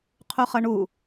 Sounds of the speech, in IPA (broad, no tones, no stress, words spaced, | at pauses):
qʰuχʌɳu